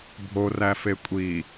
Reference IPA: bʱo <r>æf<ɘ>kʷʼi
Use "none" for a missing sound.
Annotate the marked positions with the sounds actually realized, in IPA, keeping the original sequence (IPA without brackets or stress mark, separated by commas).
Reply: r, e